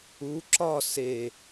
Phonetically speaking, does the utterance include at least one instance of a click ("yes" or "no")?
yes